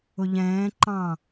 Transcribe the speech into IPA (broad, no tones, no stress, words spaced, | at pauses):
ʊʎɛ̃ː ǃɑ̃